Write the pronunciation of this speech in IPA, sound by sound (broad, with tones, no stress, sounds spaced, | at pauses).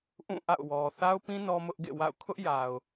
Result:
ʔ ũ˦˨ ʔ a̰˦˨ ʊ̯ w ɔ˨ θ a˦ ʊ̯ p ĩ˦ n ɔ˦ m ʊ˦ ʔ ɡ ḛ˦˨ w a̰˦˨ ʊ̯ kʰ ʊ˦ ʔ j a˨ ʊ̯